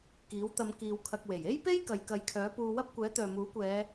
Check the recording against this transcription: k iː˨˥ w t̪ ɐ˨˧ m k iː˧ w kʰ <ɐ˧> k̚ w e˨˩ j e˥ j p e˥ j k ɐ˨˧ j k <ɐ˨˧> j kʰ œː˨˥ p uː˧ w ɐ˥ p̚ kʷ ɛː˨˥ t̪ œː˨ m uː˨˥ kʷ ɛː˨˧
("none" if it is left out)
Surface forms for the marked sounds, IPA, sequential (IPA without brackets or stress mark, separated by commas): ɐ˧, ɐ˨˧